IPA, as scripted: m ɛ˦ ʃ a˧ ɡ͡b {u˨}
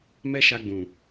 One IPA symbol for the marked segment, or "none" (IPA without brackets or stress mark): ũ˨